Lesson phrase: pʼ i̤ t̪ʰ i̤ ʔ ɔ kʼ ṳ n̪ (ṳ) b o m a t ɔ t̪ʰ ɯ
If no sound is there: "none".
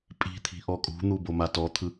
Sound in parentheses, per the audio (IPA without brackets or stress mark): u